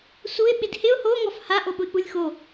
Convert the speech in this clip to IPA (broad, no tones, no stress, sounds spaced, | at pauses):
s u ɪ̯ ɓ ɪ d h ɪ ʊ̯ h o ŋ ɔ f h a ʔ o ɓ ʊ ɪ̯ k͡p u lʲ x o